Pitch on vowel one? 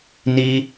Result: high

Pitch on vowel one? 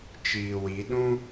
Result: low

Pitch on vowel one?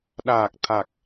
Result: low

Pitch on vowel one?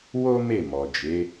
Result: high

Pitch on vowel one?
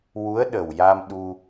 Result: rising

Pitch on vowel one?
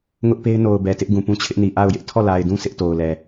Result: high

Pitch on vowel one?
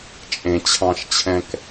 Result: low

